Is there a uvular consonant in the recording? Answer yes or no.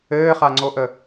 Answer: yes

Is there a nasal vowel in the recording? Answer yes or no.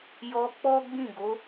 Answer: yes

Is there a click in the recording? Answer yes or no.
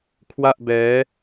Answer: no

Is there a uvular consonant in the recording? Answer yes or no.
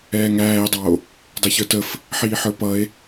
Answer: no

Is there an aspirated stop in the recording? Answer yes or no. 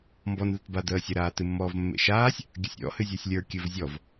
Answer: no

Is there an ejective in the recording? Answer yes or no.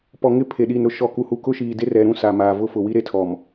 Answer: no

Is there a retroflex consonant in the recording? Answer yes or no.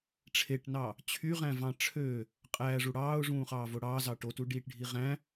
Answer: yes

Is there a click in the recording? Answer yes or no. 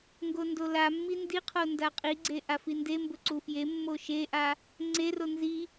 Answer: yes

